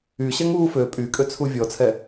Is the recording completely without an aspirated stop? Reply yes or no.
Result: no